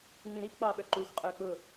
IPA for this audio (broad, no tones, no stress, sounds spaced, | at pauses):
ŋ͡m ĩ ɾ i p k͡p ɑː ɓ œ ǃ uː xʷ qʼ œː k͡p ʊ